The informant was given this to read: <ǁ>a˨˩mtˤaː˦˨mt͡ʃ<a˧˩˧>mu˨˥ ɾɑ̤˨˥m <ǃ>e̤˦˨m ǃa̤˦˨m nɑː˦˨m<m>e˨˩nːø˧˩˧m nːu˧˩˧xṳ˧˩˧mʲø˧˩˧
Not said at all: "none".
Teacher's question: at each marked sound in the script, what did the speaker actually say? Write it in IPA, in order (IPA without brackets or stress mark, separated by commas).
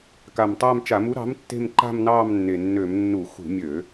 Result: k, a˧˩˧, tː, nː